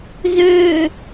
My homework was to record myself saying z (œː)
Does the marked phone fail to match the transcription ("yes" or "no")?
yes